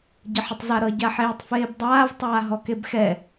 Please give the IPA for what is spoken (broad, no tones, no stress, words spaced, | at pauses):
ɟəħətˤzaɾʌ ɟaħeːtˤfeːbdˤaːv tˤaːɦɔkebxɛ